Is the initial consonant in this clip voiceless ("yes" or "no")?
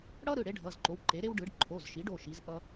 no